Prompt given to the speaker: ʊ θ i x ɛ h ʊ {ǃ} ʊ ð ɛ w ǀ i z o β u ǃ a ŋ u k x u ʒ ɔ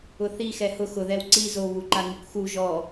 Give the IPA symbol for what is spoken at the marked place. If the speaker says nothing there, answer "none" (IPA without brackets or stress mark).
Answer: x